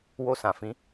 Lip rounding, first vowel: rounded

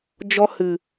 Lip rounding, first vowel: rounded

